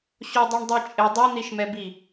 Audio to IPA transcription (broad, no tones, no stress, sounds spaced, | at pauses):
ɕ o dˤ i ɳ dˤ i t͡ʃʼ ɪ dˤ i n̪ i ʃ m ɛ b i